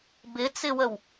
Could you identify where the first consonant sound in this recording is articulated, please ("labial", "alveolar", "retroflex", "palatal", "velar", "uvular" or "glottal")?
labial